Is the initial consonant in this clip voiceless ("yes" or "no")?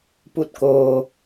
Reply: yes